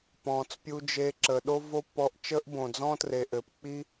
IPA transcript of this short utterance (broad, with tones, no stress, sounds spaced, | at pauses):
p ɔ̃ː˨ t͡s pʲ u˧ d͡ʒ eː˧ ǁ əː˨ ɗ o˦ v o˦ pː ɔ˧ ʔ t͡ʃ əː˦ ʔ b õ˨ d͡z ɔ̃˦ t r e˨ ʔ ɘː˨ p k͡p i˦